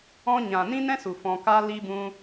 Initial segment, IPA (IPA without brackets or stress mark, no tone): ɔ̃